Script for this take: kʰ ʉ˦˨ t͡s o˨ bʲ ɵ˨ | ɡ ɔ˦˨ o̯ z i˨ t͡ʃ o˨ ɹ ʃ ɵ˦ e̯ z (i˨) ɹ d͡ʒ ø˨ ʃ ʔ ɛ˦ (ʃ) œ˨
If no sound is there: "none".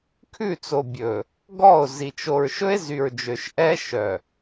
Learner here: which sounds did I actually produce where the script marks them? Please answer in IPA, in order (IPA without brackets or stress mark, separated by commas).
y˨, ʃ